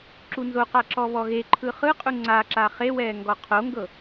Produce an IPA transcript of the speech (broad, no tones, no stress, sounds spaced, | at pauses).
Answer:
ǁ u n z o q a ǁ ɔ β ɔ ɣ e ǃʰ ɯ χ ɯ qʼ u ŋ͡ǀ a ǁ a χ e w ɛː ŋ ɡ ɔ qʰ o ŋ ɡ ɤ